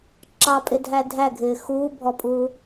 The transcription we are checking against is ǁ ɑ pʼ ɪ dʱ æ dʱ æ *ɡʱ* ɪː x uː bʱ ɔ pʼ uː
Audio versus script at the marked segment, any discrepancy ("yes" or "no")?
no